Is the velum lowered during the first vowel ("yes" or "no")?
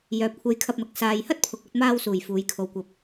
no